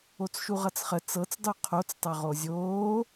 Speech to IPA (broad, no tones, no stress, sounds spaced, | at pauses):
o t͡s ʃ u ʁ ʌ t͡s χ ə t͡s ɤ t͡s dˤ u qʰ o t͡s tˤ ɤ ʁ o zʲ oː